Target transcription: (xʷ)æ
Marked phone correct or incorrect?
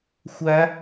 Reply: correct